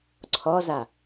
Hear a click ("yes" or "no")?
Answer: yes